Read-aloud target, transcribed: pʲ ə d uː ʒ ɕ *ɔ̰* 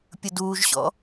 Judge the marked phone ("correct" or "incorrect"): correct